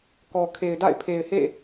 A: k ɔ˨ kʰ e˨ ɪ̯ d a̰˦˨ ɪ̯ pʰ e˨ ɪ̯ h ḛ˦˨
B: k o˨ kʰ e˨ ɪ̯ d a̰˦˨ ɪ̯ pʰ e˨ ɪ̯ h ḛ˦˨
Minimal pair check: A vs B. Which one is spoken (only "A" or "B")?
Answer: A